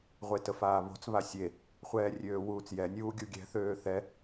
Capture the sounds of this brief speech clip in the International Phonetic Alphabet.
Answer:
ʁʷetəfaːβo̤t͡s βasʲe | χʷɛːrʲøːwuːt͡sjɛ nʲuːɡʲuɡʲɛ̤ θøːθɛ

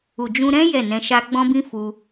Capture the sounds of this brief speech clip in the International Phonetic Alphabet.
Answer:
u˨d͡ʒũ˧ɾɛ̃˦ jɛ˦˨nɛ̃˧ʃa˦ ɡ͡bɔ̃˦bĩ˦fu˧

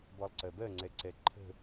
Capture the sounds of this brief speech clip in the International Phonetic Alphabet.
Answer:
bɔlˠǀɜbɜ ŋ͡ǀɛǀɛǃʰə̤

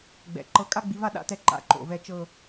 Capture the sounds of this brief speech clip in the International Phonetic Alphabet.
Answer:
ɡ͡bɛ̰˩˧ǃɤ˧ kʼa˥ɡ͡bi˧va˥˧ ɗa̰˥˧tɛ˥˧ ǃa̰˧˩ǃo̰˧˩vɛ˥˧ t͡ʃɤ˥˧

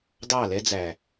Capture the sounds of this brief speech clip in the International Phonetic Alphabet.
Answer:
dɑ˦˨lɛ˦ d͡zæ˨

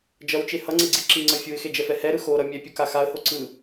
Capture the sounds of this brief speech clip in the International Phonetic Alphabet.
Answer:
d͡ʒʌwt͡ʃe hʌŋ͡ǀeɡ͡ǀi ǁiŋ͡ǀʌ fʲuɪ̯xed͡ʒɛfɛ hɛɾɯ xoɾʌ mʲɛpʲuka xaə̯ho ǀɯ

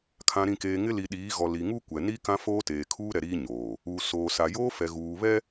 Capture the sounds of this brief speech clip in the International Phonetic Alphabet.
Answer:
kʰã˨ɾĩ˨keː˨ ŋɪ˦li˨ ɗiː˨˦ɣɔ˨li˨ ŋuː˦kʷɛ˨ni˦ kã˦foː˦teː˨kʰuː˦ ɾɛ˨ɾiː˦ ɲoː˨ | uː˨soː˨ sa˨joː˦fɛ˨ ɣuː˨βɛ˦

